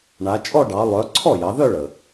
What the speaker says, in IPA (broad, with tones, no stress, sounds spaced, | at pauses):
ɳ a˩˧ t͡ʃʼ ɔ˥˧ ɖ ɑ˩˧ lˠ œ˩˧ ǀʰ ɔ˥˩ j ɑ˩˧ ð œ˥˧ ɭ ə˩